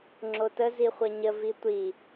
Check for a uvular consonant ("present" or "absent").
present